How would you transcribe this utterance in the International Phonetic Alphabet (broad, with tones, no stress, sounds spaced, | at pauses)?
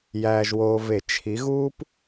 j æː˨ ʒ w oː˨ v e˨˩˦ t͡ʃʰ i˨˦ ɣ uː˥ p